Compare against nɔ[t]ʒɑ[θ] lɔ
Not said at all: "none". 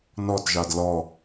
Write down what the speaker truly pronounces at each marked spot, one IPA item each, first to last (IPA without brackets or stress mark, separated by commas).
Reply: t, d